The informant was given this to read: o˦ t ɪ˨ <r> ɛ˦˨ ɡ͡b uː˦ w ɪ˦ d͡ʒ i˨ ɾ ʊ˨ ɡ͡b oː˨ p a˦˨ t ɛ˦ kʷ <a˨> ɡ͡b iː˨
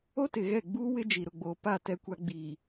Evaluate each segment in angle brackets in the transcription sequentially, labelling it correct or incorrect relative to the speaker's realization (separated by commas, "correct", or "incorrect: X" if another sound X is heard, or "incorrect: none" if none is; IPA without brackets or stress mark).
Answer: incorrect: ɣ, incorrect: a˦